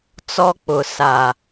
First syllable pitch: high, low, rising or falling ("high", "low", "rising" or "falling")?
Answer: high